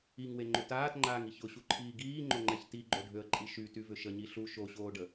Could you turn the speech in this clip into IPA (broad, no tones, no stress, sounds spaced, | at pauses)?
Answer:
i ŋ w e ŋ͡ǃ ʏ t aː t ŋ͡ǃ aː ŋ i ç ʊ ɕ u ǃʰ iː ɡ iː ŋ͡ǃ o ŋ͡ǃ ɛ ç t i ɡ͡ǃ o ɖʱ ø ə̯ ǃʼ i ʃ y t y v ʏ ʃ ə ɲ i ɬ u ʃ o ɕ oː ɖ ə